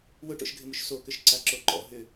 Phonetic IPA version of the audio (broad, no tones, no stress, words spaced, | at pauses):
wʊʈo̰ʃɡʱɪmuʃ sokʏʃ ǀaǁoǃɔ̰ ɦʏ